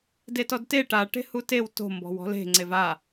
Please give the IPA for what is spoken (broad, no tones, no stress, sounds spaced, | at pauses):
d e t ɔ d t e ʈ a ʈ e̤ h u t e w t o̤ m b ɔ̤ w ɔ̤ l e̤ ŋ͡ǀ e v a